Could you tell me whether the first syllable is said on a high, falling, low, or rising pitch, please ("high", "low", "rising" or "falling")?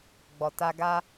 low